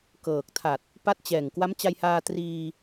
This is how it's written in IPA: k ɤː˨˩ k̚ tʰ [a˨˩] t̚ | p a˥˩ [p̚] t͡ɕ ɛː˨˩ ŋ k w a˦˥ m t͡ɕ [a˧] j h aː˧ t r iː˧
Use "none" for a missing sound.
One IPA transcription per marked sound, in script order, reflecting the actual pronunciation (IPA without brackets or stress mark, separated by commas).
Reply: a˨˩, t̚, a˧